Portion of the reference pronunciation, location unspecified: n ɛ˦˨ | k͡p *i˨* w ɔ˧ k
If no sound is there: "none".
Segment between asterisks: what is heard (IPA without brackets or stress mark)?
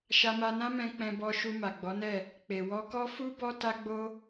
e˨